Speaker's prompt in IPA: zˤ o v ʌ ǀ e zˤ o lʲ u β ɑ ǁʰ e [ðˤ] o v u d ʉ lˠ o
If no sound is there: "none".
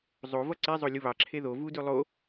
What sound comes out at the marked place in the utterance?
ð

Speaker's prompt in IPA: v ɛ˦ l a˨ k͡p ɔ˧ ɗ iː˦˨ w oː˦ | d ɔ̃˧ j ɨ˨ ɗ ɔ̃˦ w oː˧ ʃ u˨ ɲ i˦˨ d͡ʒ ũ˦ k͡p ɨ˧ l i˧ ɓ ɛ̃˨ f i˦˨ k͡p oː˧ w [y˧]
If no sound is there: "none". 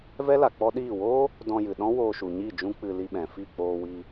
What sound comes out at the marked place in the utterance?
i˧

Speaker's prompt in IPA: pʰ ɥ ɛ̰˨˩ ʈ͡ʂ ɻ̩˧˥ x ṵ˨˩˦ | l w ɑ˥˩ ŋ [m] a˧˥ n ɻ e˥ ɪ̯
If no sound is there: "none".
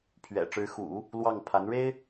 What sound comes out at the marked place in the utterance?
pʰ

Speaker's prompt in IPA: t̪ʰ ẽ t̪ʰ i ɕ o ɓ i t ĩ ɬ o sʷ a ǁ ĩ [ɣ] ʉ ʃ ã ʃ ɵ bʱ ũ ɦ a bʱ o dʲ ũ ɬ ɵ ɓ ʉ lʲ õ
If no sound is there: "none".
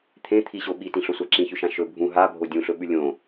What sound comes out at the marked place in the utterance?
ç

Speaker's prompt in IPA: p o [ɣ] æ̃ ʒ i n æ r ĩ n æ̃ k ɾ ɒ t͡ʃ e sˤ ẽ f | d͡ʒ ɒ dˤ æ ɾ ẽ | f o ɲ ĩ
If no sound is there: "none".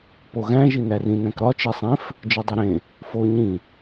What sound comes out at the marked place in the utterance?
ɣ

